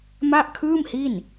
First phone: m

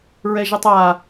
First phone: ɹ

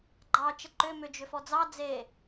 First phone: ɡ͡ǃ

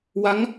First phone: w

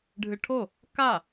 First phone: ɖʱ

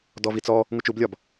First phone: d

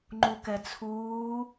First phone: ŋ͡ǃ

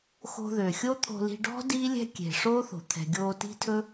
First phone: x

